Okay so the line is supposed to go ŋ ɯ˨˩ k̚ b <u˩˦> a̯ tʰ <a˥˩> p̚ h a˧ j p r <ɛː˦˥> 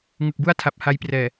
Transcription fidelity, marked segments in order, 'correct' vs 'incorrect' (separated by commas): incorrect, incorrect, incorrect